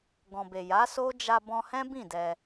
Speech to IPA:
ɡ ɔ̃˨ b e˨ j a˨˦ s o˦ d͡ʒ a˧ b ɔ̃˧ h ɛ̃˦ b ĩ˦˨ d ɛ˧

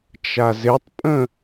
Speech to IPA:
t͡ʃ a z ɪ tˤ pʼ ə̃

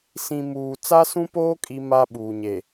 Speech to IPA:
s ĩ˨ m uː˨ t͡s a˦ s ũ˦ p oː˦ kʼ i˦ m a˦ ɓ uː˨ ɲ e˨

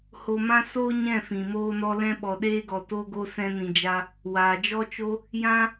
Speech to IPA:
h o˧ m ã˦ s oː˦ ɲ ɛ̃˦˨ f ĩ˨ m oː˧ n ɔ˧ l ɛ̃˧ ɓ ɔ˨ ɗ eː˧ ɡ ɔ˨ t o˧ ɡ o˧ s ɛ̃˧ n ĩ˨ d͡ʒ a˧ | w aː˨ d͡ʒ ɔ˦ t͡ʃ o˦ | j ã˦

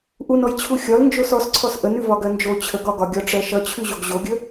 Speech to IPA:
ʔ u n ɔ j t͡ɕʰ u xʲ ɒ l n d͡ʒ o s ɔ s ǀʰ ɔ s ʔ ə n ʉ v ɒ ɡ ɜ n d͡ʒ o t͡ɕʰ ə ɡ ɒ ɡ ɒ ɡʲ ɒ ʈ͡ʂ ɜ ʃ ʌ t͡ɕʰ ʉ ʑ o ɡ ʑ o ɡʲ ə

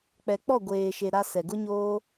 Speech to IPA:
k͡p ɛ˨ k͡p ɔ˦˨ ɡʷ eː˨ ʃ e˨ ɾ a˦ s ɛ˨ ɡ ʊ˦ ɲ oː˦

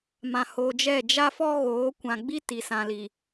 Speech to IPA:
m ã˨ h oː˨ d͡ʒ ɛ˦˨ d͡ʒ a˦ f ɔ˦ ɣ oː˨˦ kʷ ã˨ ɡ͡b i˦ t i˨ s ã˨ l i˨

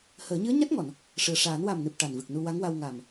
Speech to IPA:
h əː˨˩˦ ɲ ɨ˧˥ ə̯ ɲ a˦˥ t̚ ŋ ɔ˨˩˨ n | ʂ ɨ˨˩ ə̯ ʂ aː˨˩˦ n w a˨˩ m n ɨ˨˩ p̚ ʈ a˨˩ n v ɨ˨˩ k̚ n u˧ w a˧˥ ŋ w a˧ w ŋ a˨˩ m

